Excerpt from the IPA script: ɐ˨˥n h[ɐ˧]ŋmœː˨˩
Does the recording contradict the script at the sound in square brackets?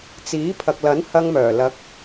no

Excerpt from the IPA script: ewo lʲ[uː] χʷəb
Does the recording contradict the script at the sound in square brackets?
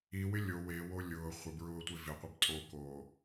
yes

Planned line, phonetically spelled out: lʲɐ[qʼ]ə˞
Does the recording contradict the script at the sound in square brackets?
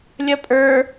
yes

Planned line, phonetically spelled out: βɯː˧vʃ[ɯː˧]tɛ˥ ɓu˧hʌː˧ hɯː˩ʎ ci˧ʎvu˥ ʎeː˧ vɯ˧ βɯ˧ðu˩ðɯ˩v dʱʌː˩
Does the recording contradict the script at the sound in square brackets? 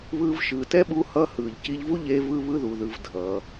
yes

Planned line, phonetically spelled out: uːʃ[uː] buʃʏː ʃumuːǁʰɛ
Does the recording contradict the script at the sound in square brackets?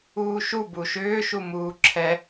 yes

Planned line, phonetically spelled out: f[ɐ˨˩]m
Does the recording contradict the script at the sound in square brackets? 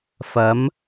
yes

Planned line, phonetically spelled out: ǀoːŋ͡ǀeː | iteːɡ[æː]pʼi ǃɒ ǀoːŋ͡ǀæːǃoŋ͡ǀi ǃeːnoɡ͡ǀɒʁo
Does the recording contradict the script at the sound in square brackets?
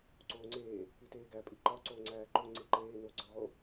yes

